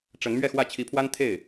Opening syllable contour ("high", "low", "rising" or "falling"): rising